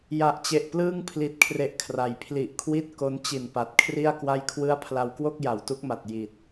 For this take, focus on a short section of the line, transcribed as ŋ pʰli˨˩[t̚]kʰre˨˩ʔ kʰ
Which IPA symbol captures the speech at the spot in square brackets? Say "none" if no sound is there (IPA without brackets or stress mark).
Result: t̚